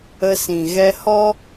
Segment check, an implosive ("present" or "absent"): absent